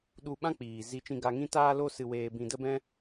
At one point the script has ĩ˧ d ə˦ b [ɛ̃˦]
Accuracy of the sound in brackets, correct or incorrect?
correct